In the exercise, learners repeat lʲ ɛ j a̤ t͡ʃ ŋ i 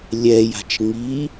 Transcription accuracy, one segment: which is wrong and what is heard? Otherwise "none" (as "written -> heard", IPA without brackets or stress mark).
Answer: none